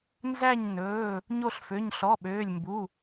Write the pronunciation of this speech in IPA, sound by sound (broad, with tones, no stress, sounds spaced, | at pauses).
n z æ˦˨ ɲ n ɵː˩˧˩ | ɲ o˦˨ ɬ f ø˩˧˩ ɲ ɬ ɔ˩˧˩ ɓ øː˩˧˩ lʲ m b u˩˧˩